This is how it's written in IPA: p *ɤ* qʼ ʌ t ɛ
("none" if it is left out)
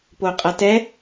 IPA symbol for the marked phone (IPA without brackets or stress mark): o